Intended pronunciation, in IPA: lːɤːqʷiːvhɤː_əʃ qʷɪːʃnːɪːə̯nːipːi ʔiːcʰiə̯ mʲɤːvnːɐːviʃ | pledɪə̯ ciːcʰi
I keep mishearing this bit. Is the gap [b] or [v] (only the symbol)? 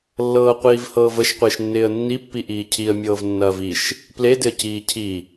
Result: v